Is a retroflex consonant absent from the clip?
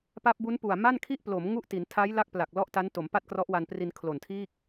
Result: yes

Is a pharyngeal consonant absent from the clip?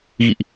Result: yes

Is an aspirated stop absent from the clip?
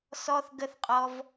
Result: yes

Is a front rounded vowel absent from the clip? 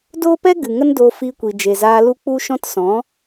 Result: yes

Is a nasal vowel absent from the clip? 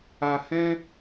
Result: no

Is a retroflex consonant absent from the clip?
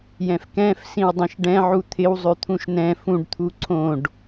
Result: no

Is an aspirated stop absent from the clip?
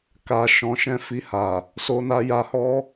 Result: yes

